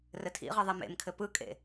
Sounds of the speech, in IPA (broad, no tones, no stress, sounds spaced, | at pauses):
r ɘ tʰ ḭ ʁ ɯ ðˤ e m ḛ m kʰ ɘ p ɯ kʼ ḛ